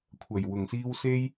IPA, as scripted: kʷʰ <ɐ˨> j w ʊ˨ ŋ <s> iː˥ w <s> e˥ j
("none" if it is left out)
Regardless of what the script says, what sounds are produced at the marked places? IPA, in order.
ɐ˨, s, s

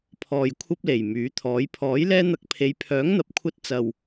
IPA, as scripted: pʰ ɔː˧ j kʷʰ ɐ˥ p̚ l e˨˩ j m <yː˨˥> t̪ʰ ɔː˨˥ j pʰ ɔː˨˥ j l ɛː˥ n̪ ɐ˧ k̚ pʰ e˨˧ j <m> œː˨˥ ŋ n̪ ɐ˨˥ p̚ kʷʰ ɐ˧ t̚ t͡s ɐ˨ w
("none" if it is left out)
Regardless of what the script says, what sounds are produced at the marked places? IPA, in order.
yː˨˥, pʰ

